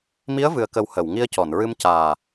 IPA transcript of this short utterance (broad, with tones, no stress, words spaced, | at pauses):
mi˧˥ə̯vɨ˨˩ə̯kə˨˩w hə˨˩˨wŋi˧ə̯cɔ˨˩˨nɹɨ˧m caː˨˩